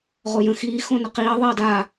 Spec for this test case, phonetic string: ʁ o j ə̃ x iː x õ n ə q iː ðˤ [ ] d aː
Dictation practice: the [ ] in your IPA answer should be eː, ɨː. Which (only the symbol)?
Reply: eː